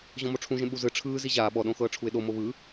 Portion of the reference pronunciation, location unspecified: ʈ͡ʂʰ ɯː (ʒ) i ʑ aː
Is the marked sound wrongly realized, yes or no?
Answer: yes